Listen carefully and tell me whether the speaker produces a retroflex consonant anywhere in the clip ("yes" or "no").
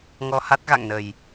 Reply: no